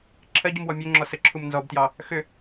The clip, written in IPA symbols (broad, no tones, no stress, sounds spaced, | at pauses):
ǁʰ ɜ ɟ u m w ɔ mʲ ø ŋ͡ǁ ɔ s ə ǁʰ u m n z ɔ b t j ɑ | x ʏ